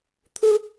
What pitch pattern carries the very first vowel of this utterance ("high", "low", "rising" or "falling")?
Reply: high